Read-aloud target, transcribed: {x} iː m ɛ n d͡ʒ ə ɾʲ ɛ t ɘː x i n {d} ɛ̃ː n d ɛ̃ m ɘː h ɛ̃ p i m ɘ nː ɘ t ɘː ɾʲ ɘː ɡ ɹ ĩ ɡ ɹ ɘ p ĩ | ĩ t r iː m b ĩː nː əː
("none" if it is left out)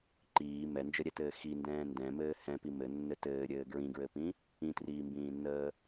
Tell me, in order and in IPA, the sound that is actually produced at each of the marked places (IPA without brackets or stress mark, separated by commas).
ǃ, d